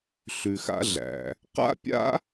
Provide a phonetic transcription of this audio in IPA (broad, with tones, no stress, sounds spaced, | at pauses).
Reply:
ɬ ʉ˩ x a̰˥ ɮ æ̰˩ | q a̰˥ pʲ a̰˥